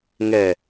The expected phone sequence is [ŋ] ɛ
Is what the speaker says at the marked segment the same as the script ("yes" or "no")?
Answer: yes